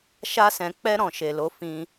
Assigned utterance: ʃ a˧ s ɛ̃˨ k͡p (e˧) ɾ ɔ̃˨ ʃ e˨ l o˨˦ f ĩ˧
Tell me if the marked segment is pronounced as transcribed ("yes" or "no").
no